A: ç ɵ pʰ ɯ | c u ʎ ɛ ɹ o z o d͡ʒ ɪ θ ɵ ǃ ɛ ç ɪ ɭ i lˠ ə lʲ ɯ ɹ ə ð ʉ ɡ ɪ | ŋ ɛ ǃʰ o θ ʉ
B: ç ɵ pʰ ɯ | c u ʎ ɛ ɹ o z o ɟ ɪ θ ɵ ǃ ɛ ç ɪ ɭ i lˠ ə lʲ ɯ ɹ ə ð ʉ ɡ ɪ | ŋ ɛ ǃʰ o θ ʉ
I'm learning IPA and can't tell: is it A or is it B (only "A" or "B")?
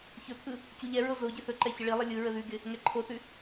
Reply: B